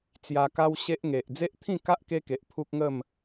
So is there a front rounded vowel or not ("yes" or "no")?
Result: no